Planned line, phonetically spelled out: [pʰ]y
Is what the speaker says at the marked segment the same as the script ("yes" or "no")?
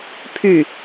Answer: yes